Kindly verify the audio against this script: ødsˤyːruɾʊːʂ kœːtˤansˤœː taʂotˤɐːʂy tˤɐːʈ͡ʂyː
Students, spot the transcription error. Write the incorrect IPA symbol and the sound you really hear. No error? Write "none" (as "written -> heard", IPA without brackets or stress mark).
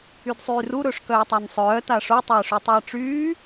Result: ø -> y